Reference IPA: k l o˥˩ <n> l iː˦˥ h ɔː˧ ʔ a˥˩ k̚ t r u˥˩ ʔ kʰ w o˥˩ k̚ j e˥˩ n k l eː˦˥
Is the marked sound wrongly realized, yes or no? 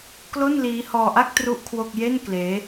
no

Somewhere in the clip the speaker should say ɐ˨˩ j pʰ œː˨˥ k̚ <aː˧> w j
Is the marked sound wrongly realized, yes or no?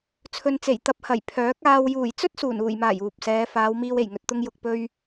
no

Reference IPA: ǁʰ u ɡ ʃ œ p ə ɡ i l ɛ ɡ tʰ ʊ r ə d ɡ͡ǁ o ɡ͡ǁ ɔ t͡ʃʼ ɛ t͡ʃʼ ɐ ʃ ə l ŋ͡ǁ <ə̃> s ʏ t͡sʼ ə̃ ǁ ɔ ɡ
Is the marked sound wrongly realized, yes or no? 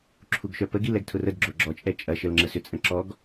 yes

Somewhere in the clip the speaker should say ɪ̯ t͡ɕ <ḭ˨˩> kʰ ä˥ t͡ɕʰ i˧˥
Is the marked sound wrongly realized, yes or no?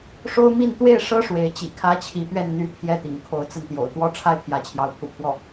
no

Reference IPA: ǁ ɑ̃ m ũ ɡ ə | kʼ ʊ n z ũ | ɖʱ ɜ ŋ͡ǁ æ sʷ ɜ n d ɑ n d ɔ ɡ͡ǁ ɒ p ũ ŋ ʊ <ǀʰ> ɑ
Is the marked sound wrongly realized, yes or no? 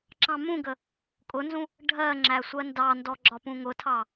yes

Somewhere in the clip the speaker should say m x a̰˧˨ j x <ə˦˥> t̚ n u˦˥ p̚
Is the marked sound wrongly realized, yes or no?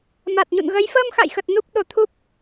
yes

